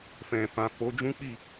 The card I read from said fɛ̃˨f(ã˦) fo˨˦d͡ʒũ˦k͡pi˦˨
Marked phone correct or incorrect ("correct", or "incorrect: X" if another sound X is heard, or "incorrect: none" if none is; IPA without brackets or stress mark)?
incorrect: ã˨